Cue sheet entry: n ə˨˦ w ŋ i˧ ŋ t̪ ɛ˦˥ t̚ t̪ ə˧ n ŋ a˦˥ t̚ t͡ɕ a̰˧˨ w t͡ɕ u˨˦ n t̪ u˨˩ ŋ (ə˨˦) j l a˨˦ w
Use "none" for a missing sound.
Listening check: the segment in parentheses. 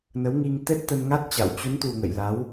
ə̰˧˨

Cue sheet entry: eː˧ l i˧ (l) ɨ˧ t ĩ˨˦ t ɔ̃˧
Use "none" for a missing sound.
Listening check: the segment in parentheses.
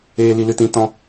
l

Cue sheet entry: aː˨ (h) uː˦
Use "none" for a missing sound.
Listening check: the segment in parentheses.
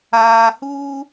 h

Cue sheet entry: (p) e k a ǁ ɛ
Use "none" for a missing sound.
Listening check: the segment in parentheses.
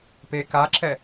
p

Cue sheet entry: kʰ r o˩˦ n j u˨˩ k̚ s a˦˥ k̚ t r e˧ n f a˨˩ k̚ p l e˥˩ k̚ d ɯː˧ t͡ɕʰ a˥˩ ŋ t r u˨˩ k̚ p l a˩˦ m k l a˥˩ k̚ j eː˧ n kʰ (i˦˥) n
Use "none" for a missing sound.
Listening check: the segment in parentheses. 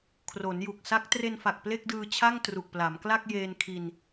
i˧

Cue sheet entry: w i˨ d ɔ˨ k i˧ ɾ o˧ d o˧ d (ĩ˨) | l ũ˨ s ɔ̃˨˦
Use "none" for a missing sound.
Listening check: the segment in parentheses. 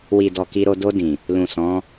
ĩ˨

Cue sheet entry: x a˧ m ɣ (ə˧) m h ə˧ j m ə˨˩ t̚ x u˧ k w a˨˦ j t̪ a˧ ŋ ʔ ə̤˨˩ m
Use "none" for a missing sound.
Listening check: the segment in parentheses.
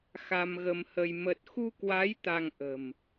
ə˧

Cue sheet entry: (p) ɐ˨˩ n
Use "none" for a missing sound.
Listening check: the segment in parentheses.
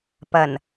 p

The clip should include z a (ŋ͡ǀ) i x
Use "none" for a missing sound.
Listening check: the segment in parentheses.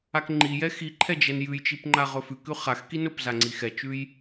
ŋ͡ǀ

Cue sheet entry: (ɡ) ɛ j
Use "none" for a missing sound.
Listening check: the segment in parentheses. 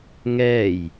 ŋ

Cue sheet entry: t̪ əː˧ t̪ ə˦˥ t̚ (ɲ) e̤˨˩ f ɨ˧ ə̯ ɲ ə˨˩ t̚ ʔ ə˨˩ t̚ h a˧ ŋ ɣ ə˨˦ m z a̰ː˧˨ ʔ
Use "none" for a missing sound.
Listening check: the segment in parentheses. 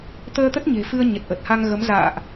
ɲ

